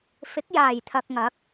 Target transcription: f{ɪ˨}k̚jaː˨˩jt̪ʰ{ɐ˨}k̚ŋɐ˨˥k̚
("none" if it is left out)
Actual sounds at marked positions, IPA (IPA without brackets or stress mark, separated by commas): ɪ˨˥, ɐ˨